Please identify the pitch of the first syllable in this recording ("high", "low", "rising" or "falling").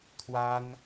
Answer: high